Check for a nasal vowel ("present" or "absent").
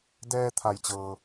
absent